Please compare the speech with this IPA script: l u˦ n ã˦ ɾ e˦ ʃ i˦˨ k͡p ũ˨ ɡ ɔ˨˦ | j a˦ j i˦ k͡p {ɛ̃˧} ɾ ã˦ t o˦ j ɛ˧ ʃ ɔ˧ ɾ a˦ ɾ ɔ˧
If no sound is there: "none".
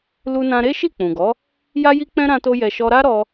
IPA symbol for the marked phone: ɛ̃˦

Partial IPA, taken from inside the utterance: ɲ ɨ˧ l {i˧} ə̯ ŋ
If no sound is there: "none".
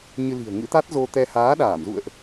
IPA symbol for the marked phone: i̤˨˩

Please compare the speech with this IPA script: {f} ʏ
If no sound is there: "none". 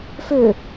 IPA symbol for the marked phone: f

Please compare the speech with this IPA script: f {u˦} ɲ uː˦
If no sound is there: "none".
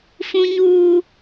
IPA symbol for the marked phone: ũ˦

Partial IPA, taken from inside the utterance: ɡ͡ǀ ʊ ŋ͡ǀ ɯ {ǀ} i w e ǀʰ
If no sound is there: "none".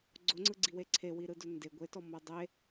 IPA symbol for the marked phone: ɡ͡ǀ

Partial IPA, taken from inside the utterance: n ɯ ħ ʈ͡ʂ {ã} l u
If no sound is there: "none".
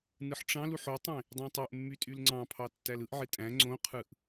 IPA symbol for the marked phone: ɑ̃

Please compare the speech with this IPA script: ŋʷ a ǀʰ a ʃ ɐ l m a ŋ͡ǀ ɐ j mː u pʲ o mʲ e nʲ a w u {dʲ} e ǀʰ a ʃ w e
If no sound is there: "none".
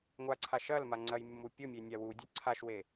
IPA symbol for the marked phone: dʲ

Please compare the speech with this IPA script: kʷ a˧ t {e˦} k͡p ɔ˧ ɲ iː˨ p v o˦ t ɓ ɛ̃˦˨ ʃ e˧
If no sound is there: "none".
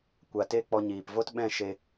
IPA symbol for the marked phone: e˦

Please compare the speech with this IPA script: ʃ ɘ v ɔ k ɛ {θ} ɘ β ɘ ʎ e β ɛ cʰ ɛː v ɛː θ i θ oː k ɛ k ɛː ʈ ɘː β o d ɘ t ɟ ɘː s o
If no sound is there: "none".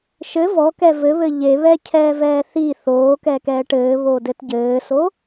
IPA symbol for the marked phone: v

